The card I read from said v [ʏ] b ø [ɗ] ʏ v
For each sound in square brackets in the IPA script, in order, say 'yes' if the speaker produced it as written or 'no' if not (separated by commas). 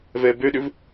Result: no, yes